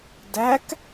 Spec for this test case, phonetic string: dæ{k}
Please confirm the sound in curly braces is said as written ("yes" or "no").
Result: yes